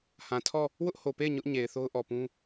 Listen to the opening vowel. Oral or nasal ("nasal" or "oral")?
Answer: nasal